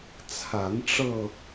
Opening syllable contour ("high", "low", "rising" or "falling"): rising